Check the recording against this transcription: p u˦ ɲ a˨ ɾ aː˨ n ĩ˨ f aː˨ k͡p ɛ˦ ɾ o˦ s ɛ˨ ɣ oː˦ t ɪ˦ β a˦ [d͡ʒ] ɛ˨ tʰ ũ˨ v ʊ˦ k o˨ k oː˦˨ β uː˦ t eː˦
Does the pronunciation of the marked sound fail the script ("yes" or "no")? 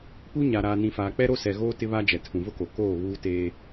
no